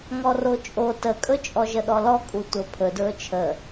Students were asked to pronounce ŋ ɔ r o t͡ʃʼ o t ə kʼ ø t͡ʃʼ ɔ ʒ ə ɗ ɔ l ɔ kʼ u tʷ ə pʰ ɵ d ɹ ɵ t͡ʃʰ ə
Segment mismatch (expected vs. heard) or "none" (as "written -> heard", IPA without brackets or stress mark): ø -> ɵ